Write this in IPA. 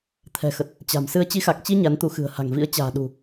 t̪ʰ ɛ̤˨˩ x ə˨˩ t̚ | t͡ɕ a̤˨˩ m s ɨ˧ ə̯ t͡ɕ i˨˦ x a˨˩ k̚ t͡ɕ i˧ ɲ a˨˦ n t̪ u˨˦ x ɨ̤˨˩ ə̯ h a̤˨˩ ŋ v ḭ˧˥ ə̯ t͡ɕ a̤ː˨˩ ɗ ṳ˨˩

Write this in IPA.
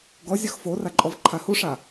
ɡ ɔ zʲ ɔ x f o r a ǃʼ ɔ v ǃʰ a h u ʂ a

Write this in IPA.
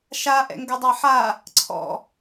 ʃ a ʔ ɛ̰ ŋ ɡ ʊ dˤ a ħ a | ǀʰ ɔ̰

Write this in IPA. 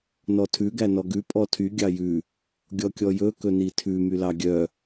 n ɔ tʰ ʉ ɡ æ n ɔ ɡ ʉ pʼ ɔ tʰ y ɡʲ ɑ j ʉ | ɡʲ ɔ kʲ ɔ j ɵ k ɵ n i tʰ ʉ m y l ɑ ɡʲ œ

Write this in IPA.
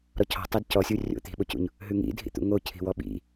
ɾ ɔ cʰ ɔ̤ tˤ e d c ɔ sʲ u rʲ o̰ t̪ i̤ ɓ o c ṵ ɲ | ɦ ʉ ŋ ḭ dʱ ḭ t̪ ṵ ŋ o cʰ i̤ w ɔ ɓ ḭ

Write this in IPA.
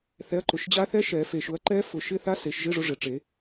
θ ɛ˨˦ ɐ̯ ǃ ʊ˨˩ ʃ d͡ʑ a˦˥ θ ɛ˦˥ ʃ ɛ˨˩˦ f e˨˩ ʃ ʊ˨˦ ɐ̯ ǃ ɛ˦˥ f ʊ˨˩˦ ʃ ɪ˧˥˧ θ a˦˥ s e˨˩˦ ʃ ʒ ɪ˧˥˧ ʐ ʊ˨˦ ʐ ɪ˨˩ ʈ͡ʂ e˨˩˦

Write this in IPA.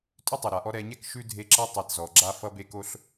tʼ ʉ˥ tˤ ʉ˩ ɾ a˩ ʔ ɔ˦ ɾ ɛ˨ ɲ ɛ˦ k ʃ ʉ˥ dʱ e˦ ǁ ʌ˥ tˤ e˨ t z ɔ˩ ɡ͡ǁ a˦ f ʌ˦ b e˦ k o˦ ɬ

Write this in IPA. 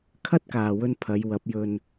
kʰ ɐ˥ t̚ k aː˨ w ɵ˧ n pʰ ɐ˨˧ j w ɐ˨˥ p̚ j ɵ˧ n

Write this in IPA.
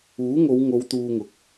uː˨˥ ŋ o˨˧ w ŋ o˨˧ w t̪ uː˧ ŋ ʊ˨˥ k̚

